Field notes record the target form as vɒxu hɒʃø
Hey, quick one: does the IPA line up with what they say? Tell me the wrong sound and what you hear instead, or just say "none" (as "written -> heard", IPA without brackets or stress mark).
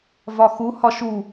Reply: ø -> u